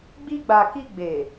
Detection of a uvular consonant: absent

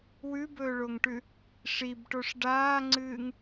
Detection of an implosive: absent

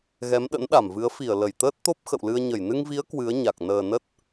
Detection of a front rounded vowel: absent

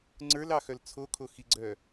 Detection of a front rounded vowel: present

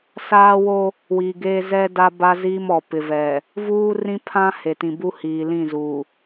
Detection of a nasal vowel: present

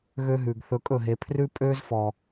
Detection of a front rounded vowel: present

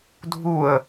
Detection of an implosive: absent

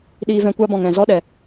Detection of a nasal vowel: present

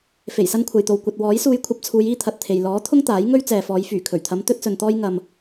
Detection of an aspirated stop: present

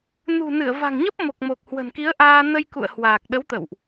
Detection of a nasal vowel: absent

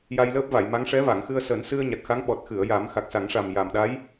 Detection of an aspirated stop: absent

